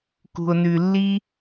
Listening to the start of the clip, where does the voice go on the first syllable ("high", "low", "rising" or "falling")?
low